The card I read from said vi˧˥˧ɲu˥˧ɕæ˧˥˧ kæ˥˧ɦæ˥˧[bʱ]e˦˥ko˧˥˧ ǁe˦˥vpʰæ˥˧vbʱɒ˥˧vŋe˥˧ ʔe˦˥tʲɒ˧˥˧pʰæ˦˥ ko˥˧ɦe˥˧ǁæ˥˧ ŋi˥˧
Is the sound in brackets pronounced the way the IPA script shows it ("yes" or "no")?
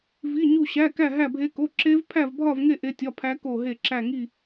yes